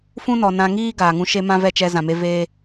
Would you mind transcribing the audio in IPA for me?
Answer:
f ũ˦ n ɔ˨ n ã˧ ŋ iː˦ ɡ aː˨ ŋ ũ˧ ʃ e˦ m ã˦ v ɛ˦˨ t͡ʃ ɛ˧ z ã˨ m e˧ v e˦

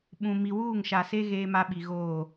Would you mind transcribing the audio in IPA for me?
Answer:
ɓ ũ˨ m i˨ w uː˦˨ ŋ ʃ a˨ s e˦ ɣ eː˦ m a˦ ɓ i˨ ɣ oː˦˨

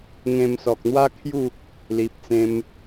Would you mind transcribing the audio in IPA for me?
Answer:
ŋ ẽ˧ m s ɔ˨ k̚ n̪ w a˦ kʰ j u˥˧ | l i˨ p̚ t͡s ẽ˧ m

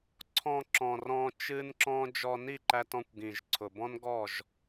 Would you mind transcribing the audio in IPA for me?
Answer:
ǀʰ ɔ̃˧ ǁ ɔ̃˨ r ɔ̃˧ t͡ʃ ɨ˦ n ǁ ɔ̃˦ d͡ʒ ɔ˧ n i˦˨ ǃ æ˧ t ɔ̃˧ kʷ ɡ ĩ˨ ʒ ǀʰ ʊ˨ b ɔ̃˦ n ɡ ɔ˦˨ ʒ

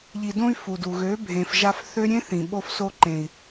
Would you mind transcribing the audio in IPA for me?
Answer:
ʎ i˨ d õ˧ y̯ f u˨ d u˨ ɣ ø˨˦ bʱ ẽ˨ f ʒ a˧ f θ ø˦ ɾʲ ẽ˦ θ ĩ˨ ɓ o˧ f s o˧ ǃ ẽ˨ i̯

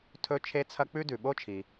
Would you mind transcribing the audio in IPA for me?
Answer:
tʰ ɵ˥ t͡ʃʰ e˥ t͡sʰ ɐ˥ k͡p ʉ˥ d ʉ˩ ɓ o˥ t͡ʃʰ i˩

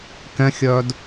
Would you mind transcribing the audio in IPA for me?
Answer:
k ɛ̃ xʲ œː d

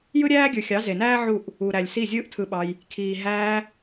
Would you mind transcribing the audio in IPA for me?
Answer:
j ɯ˦ ɾʲ æː˦ ɡʲ ɯ˨ xʲ ɑ˨˦ z e˨ n æː˦ ʕ u˦˨ ʔ | u˨ ɾ æ˨ lʲ s i˦˨ zʲ ɯː˦ ʔ tʰ ɯ˧ ɓ ɑ˧ j | kʰ iː˨ ɦ æː˧

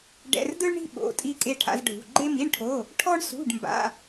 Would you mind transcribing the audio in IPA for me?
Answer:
ɖ ɛ̰˧˥˧ r d ɯ˥ ɭ ɳ i̤˥ ɓ o̰˧˥˧ tʼ i˥ kʼ e˥ ʈʰ a̰˥ z ɖʱ ṳ˧˥˧ ɡ͡ǃ e˥ m i˧˥˧ ɳ ʈʰ o˧˥˧ | ʈʰ ɔ˥ ɳ s ṳ˧˥˧ ɖ m b a̰˧˥˧

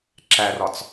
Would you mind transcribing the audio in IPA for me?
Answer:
ǁ æ r ɒ t͡s

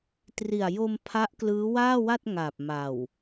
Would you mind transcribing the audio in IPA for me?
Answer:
t r i˨˩ a̯ j o˧ m pʰ a˦˥ ʔ k l ɯː˦˥ w aː˥˩ w a˥˩ t̚ ŋ a˨˩ p̚ m a˨˩ w

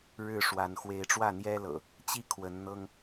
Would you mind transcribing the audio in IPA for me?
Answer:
ɻ ɻ̩˥˨ ʂ w a˨˦ n x w e˨˦ ɪ̯ ʈ͡ʂ w ä˥˨ n̪ j ɛ˦ l ɤ̰˨˩ | t͡ɕ i˥˨ kʰ w ə˨˦ n n̪ ɤ˦ ŋ

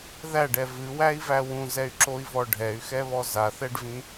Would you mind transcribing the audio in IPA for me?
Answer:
ð æ ɖ ɛ v ɨ w æ i̯ v æ w ũ z ɛ y̯ ǁ o i̯ v ɔ ɖʱ ɛ y̯ x ɛ β ɔ z a θ ɛ ɖ v ĩ

